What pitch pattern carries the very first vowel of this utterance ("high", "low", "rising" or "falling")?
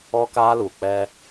high